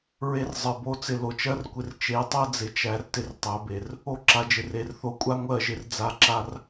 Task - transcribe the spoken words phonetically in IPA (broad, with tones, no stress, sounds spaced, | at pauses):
ɹ e˧ r zˤ ɜ˨ b o˨˦ t͡s ɪ˨ l o˨ t͡ʃ ɜ˦ r kʷ ɪ˧ r t͡ʃ e˨˦ tˤ ɜ˦ d͡z ɪ˨ t͡ʃ æ˧ r t ɪ˧ r tˤ æ˨˦ b e˨ r | o˦ ǁ a˨ d͡ʒ ɪ˨ r e˨ r θ o˧ kʷʼ a˦ ŋʷ ɜ˦˨ ʒ ɪ˧ r d͡z a˦˨ ǁ a˦ r